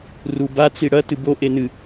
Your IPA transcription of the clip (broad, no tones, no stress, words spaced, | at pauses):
ruba t͡siɽɐ tɨbo ʔenɨ